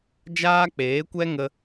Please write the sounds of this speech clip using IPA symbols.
d͡ʒ aː˦ k͡p eː˨˦ kʷ ɛ˦ ŋ ə˦

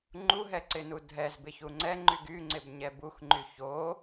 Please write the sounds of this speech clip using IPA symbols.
ŋ͡ǃ u ɦ ɛ ǀ ɪ n u dʱ ɛ z b ɪ ç u ŋ͡ǀ ɛ ŋ͡ǃ y ɡ y ŋ͡ǀ ɪ b ɲ ɛ b u x ŋ͡ǃ y ç o

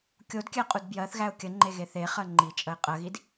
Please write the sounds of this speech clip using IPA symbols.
kʲ o d kʲ æ qʼ u d b j ɜ θ ɣ æ ʊ̯ kʲ ə ŋ͡ǃ e ɣ e θ e χ ɜ ŋ͡ǃ i t͡ʃʼ ə ɪ̯ qʼ ɜ ɣ i d

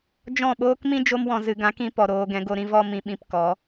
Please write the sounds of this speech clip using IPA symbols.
d͡ʒ ɔ̃˦˨ ɓ oː˦ k m ĩ˦ d͡ʒ o˧ m w ɔ̃˨ z ɨ˨ ɡ ã˨˦ k ĩ˧ p ɔ˨ ɾ oː˧ ɡ ɛ̃˨˦ ɡ o˧ ɾ ĩ˦ v ɔ˦ m ĩ˧ ɓ ĩ˧ p k ɔ˨˦

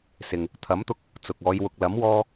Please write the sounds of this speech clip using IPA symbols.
s ɪ˨ ŋ | t̪ʰ ɐ˨˥ m t̪ ʊ˧ k̚ | t͡s ʊ˨ k̚ ɔː˨˧ j w ʊ˨ k̚ l ɐ˨˥ m w ɔː˧

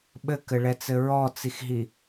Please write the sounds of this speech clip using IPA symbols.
ɓ ɘ k ɘ ɭ ɛ t͡s ɘ ɹ ɔ t͡s i x ɦ i

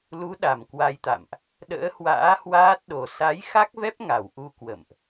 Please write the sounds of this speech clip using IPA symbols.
l u˨˦ ɗ a˧˩ m k w a˧ j t̪ a̰˧˨ m ʔ | ɗ ə̰ː˧˥ h w a̰ː˧˥ h w aː˦˥ t̚ ɗ o˨˩ s a˨˦ j x a˦˥ k̚ v ɛ˦˥ p̚ ŋ a˧˩ w ʔ u˧ k w ə̰˧˨ m ʔ

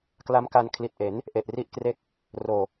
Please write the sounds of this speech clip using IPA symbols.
k l a˦˥ m k a˧ n kʰ l i˨˩ t̚ ʔ e˩˦ n | ʔ e˨˩ ʔ r i˥˩ ʔ k r e˥˩ k̚ | r oː˨˩

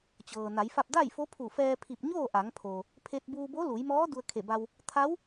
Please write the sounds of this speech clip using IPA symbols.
t͡ɕ ɤː˩ n a˩˧ j f a˥˨ p̚ d a˥˨ j f o˧˥ pʰ u˧˩ f ɛː˧ pʰ i˧˩ p̚ ɲ oː˥˨ ʔ a˩˧ ŋ pʰ o˩ | pʰ e˧ t̚ b uː˧ b o˧˥ l u˩˧ j m ɔː˧˥ d u˧ ə̯ kʰ e˧˩ b a˧ w | t̪ʰ a˧˥ w

